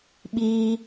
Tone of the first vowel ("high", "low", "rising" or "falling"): high